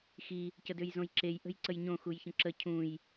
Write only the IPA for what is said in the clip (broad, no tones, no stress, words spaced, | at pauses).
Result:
xi | cədøjzõjǁej ʔə̤jǀəjɲõ xujçə̃ǁə cʰũj